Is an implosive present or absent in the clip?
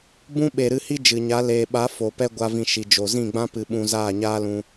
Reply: present